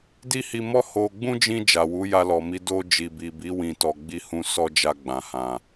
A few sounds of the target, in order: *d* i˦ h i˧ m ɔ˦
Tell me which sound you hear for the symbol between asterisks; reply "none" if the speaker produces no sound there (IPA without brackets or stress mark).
d